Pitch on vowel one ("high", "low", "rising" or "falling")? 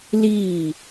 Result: falling